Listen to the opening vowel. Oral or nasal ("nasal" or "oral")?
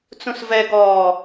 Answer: nasal